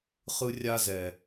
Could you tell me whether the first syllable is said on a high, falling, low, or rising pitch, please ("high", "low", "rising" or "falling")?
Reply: high